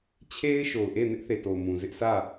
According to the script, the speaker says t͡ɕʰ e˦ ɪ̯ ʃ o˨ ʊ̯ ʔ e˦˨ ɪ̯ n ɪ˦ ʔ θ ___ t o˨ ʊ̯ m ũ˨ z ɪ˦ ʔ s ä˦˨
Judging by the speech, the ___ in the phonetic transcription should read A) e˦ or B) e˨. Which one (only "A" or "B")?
B